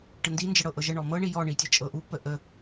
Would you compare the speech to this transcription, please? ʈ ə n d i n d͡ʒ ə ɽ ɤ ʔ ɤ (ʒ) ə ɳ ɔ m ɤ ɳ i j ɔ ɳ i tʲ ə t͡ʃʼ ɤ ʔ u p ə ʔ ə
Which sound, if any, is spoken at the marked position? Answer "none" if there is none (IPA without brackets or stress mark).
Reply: ʒ